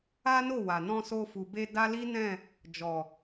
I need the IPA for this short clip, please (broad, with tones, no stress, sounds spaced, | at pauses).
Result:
a˦ n o˦˨ w a˨ n ɔ̃˧ s o˧ f u˨ b e˧ d a˦ l i˦ n ɛ̃˦˨ | d͡ʒ ɔ˨